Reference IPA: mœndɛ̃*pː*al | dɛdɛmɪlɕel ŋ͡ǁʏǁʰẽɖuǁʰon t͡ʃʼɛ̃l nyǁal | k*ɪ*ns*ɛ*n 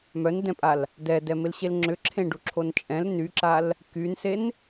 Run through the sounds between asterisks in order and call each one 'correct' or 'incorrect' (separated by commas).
incorrect, incorrect, incorrect